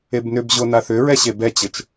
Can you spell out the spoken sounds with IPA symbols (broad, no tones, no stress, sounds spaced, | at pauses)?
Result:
e b n ʏ b ʑ o n a θ ʏ ɹ ɛ ɕ e b ɛ t͡ɕ ɘ t͡ʃ